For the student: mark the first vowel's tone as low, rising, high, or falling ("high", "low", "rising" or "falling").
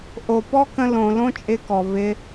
low